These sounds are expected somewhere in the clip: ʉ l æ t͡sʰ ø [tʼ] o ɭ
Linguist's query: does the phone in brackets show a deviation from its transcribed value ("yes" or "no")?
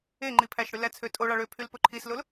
no